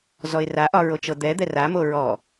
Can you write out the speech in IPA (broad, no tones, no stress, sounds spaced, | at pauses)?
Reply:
z ɔ ɪ̯ r a ʔ ɒ ɹ o t͡ʃ ɤ d̪ ɛ d̪ ɛ r a m o ɹ ɔ